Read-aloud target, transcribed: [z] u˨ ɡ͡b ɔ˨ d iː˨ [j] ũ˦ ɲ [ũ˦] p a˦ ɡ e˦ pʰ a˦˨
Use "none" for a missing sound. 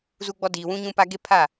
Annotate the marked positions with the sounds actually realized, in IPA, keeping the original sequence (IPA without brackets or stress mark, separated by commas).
z, w, ũ˦